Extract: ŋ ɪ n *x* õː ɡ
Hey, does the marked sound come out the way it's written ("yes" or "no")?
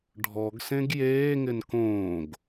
no